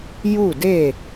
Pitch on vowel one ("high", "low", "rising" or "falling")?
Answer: falling